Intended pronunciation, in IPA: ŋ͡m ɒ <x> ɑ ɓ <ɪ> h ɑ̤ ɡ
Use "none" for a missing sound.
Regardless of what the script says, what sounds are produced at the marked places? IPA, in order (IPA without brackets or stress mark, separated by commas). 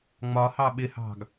h, ɪ